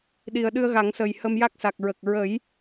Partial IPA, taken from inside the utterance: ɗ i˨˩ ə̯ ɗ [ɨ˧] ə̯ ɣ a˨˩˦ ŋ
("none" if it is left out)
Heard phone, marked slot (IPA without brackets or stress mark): ɨ˧